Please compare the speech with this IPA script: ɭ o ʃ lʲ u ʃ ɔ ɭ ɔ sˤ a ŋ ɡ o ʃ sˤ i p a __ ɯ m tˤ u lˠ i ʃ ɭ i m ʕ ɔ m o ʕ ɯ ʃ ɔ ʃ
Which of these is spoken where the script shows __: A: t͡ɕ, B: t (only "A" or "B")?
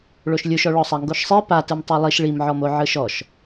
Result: B